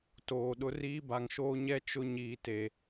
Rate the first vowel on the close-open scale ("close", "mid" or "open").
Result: mid